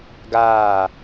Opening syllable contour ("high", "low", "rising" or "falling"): falling